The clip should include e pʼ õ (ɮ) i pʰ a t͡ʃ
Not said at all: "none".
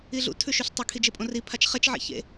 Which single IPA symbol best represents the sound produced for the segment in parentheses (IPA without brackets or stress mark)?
r